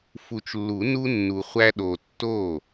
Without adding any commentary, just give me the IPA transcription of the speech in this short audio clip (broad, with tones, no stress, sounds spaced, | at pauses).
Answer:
f u˨ t͡ʃ lː u˨˩˦ n u˦ nː u˨ χʷ æ˦ ɗ o˨ tː o˥˩